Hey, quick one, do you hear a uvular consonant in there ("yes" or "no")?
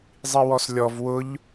no